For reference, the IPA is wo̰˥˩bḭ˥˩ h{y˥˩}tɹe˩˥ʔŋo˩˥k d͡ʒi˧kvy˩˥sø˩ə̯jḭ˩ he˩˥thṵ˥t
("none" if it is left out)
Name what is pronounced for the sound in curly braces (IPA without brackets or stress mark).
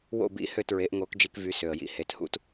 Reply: ø˥˩